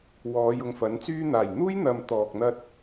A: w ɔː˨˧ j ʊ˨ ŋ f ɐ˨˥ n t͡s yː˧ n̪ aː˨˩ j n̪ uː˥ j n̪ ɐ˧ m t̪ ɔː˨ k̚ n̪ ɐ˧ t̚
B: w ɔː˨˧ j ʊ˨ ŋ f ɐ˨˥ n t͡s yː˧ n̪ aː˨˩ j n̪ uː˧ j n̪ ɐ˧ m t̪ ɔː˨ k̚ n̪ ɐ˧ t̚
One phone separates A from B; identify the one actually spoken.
A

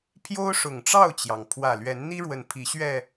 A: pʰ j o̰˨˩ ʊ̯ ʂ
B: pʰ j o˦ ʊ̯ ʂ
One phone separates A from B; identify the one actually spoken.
B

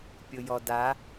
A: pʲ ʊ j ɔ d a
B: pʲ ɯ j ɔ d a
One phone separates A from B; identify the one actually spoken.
A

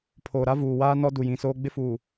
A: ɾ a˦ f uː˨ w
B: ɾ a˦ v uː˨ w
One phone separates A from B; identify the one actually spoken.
B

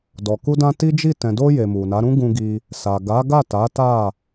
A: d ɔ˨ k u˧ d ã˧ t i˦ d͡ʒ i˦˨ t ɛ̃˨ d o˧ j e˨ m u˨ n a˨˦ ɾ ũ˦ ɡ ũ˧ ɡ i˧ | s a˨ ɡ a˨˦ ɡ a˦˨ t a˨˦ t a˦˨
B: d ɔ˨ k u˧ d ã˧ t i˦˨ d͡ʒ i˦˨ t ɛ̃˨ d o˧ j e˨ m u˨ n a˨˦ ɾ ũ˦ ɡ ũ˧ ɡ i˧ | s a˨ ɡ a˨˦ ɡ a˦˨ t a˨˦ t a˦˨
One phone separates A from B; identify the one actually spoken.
A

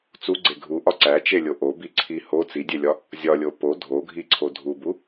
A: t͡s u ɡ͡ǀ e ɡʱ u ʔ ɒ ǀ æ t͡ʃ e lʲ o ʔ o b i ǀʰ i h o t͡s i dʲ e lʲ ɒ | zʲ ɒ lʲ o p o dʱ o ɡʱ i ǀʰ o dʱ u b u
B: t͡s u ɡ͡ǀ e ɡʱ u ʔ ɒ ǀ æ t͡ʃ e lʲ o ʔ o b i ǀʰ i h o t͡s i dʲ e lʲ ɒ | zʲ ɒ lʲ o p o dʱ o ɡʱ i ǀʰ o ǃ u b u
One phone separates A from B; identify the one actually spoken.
A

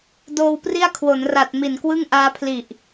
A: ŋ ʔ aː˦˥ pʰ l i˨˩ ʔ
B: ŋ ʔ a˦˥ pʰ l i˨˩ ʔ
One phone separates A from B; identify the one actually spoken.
A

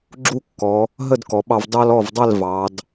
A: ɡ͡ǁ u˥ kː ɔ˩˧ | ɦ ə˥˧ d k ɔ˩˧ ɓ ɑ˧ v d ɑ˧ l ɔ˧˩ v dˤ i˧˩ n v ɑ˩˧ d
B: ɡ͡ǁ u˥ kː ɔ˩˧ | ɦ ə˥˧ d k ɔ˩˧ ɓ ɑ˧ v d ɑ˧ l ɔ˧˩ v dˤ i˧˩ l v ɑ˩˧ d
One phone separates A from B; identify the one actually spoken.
B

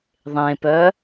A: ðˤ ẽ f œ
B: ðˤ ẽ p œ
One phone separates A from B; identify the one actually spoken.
B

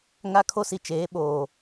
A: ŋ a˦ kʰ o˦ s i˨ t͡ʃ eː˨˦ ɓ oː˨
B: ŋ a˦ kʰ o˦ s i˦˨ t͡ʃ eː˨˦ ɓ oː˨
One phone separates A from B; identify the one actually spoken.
A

